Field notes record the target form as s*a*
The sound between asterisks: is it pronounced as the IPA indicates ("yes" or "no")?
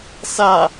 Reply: yes